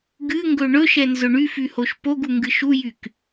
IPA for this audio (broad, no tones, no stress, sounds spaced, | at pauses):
ɡ ɨ ŋ ɡ ɵ ɳ ɵ ʃ ɛ n z ʊ ɳ y f y h o ʃ p o ɡ u ŋ ɡ ɨ ʃ u j y k